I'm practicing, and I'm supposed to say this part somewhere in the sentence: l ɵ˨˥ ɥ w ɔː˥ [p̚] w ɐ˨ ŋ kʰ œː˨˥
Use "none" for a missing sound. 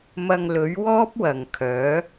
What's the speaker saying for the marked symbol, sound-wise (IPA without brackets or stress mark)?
p̚